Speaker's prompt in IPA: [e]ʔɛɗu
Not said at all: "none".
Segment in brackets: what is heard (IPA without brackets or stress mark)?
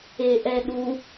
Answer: e